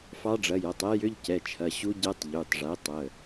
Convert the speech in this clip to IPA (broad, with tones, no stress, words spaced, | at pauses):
fɑ˧˥ɖ͡ʐɐ˩˧˩jɐ˩˧˩tˤɛ˧˥ jʏ˧˥˧ʎcɛ˩˧˩t͡ʃʰɐ˩˧˩ɕu˧˥ ɟɛ˧˥tˤ ʎy˩˧˩tˤʐɛ˩˥ tˤə˩˧˩